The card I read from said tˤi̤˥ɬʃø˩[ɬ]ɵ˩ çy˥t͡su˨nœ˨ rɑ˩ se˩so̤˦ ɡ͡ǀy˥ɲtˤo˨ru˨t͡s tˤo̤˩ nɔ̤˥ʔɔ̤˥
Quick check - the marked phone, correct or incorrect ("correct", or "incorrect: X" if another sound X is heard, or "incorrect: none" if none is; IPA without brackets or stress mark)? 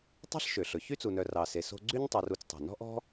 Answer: correct